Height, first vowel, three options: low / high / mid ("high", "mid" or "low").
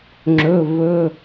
mid